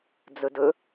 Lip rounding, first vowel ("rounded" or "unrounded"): rounded